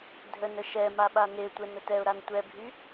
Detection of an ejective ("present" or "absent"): absent